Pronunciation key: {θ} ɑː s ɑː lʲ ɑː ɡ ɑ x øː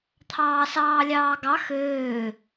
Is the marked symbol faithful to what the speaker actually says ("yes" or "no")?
no